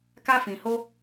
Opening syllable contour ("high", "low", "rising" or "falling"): high